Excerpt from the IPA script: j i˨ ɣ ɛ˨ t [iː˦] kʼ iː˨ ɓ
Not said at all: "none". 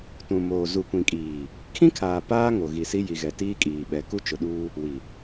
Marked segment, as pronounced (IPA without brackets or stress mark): iː˦